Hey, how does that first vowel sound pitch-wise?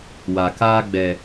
low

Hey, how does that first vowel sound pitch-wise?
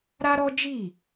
high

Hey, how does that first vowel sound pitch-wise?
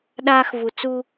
high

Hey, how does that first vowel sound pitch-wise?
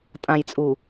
low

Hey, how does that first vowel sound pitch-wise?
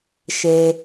low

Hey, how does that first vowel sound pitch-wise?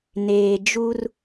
low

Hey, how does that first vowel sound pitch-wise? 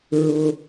high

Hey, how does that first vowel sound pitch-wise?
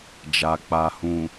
low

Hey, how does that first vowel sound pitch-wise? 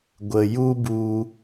low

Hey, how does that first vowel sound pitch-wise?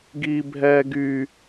high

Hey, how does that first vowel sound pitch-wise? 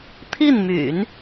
falling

